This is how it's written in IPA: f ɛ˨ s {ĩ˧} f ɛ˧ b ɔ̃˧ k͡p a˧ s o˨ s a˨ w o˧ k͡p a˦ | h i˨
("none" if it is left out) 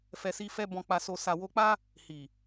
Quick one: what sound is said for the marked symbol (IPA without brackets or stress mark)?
i˧